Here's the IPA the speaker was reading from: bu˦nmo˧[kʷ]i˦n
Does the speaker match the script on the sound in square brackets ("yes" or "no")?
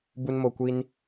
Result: yes